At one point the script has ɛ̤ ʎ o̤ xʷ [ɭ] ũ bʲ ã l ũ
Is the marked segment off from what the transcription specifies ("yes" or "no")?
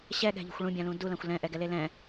no